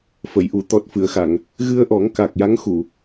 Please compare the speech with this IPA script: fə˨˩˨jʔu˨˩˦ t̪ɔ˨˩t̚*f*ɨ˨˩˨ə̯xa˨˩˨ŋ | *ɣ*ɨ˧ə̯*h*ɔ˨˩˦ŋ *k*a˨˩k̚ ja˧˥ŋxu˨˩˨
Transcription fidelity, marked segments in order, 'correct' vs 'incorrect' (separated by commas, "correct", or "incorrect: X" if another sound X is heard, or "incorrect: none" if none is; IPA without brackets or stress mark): correct, correct, incorrect: ʔ, correct